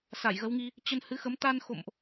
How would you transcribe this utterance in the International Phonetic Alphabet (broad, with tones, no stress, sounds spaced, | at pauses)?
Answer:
s a˧˩ j ɣ ə˨˦ w ŋ i˧ | t͡ɕ ə˧ n h ɨ˨˦ x ə˨˦ m t̪ a˧ n x o̰˧˨ m ʔ